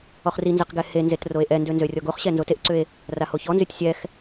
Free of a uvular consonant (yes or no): no